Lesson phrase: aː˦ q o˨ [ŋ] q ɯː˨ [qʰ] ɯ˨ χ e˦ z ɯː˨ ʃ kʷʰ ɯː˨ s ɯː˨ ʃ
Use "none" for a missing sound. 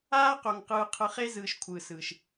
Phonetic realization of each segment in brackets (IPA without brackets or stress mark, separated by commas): ŋ, qʰ